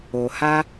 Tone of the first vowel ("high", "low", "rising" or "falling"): low